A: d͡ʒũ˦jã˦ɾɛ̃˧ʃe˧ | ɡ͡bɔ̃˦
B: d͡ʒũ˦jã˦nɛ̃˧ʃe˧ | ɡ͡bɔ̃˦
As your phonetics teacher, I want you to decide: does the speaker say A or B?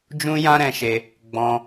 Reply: A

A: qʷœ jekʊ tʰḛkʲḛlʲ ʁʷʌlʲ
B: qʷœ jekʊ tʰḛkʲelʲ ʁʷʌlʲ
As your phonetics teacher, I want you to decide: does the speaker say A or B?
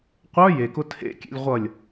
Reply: A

